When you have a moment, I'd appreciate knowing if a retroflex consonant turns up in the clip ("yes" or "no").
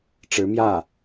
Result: yes